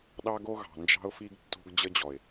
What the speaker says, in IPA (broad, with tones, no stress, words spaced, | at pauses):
ɗɑ˦ɡo˦ɣɑ̤˨ nd͡ʒɑ̤˦ʊ̯fi˦ɡtːo̤˦ɡ d͡ʑə˦d͡ʑɔ˨ɪ̯